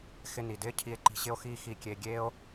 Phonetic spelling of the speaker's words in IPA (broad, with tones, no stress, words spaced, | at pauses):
xɪ˧ni˩dɪː˥ cʰi˧e̯ǃi̤˧ɕɪ˥o̯xiː˥ xi˧kʲe˧ ɡʲeː˥o̯